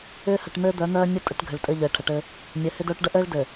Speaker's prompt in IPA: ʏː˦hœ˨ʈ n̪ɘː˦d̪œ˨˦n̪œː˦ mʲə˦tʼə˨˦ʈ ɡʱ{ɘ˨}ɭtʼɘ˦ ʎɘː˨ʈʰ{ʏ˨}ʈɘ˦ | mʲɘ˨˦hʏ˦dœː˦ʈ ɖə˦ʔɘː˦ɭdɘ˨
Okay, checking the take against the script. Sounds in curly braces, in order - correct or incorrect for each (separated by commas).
correct, incorrect